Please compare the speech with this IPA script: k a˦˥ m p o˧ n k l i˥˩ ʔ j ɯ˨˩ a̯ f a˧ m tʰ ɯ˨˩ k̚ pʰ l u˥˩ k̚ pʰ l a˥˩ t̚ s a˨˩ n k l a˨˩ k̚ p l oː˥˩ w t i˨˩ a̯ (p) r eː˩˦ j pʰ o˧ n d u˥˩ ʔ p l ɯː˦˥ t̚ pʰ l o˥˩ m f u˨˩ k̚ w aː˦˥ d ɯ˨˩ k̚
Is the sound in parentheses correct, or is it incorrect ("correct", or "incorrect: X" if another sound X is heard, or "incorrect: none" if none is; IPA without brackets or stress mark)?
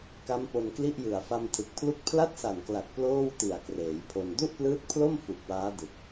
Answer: incorrect: k